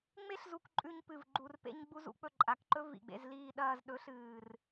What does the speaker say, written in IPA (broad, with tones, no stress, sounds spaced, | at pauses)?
ŋ͡m e˦ ɬ z u˧ k ǃʼ ʉ˧ ɲ p ɨ˨ v ɡ͡ǃ u˨ r p ḛ˧ ɲ ɡ͡b u˧ z ṵ˧ k͡p ɵ˦˨ ǃʼ a˨ k ǃ ɵ˦ v ḭ˨ ɡ͡b ḛ˧ z l iː˧ ɗ ɐː˧ z ɗ ɵ˨˦ ɬ ɨː˨ r